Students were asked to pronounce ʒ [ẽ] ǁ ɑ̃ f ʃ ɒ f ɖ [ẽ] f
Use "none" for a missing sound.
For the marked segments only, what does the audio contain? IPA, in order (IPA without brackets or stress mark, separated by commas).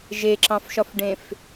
e, ẽ